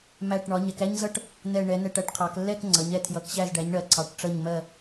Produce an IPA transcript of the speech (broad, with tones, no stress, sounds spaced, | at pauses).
m æ˧˩ ʈ ɳ ɒ˩˧ ɲ ɛ˩˧ k æ˥ ɲ z ʌ˥ ʈ | n̪ ɛ˧˩ ɳ ɛ˩˧ n ɛ˧˩ ʈ æ˥˧ ʈ qʰ ɑ˩˧ k lː ɛ˥˧ k ŋ͡ǀ ʌ˩˧ ɲ ɛ˩˧ tʰ j ʌ˩˧ k ɕ æ˧˩ z ɖ æ˩˧ ɲ ɳ ɜ˩˧ ǀʰ ɑ˩˧ ʈ ʈ͡ʂ ʌ˧˩ ɲ m ɜ˧˩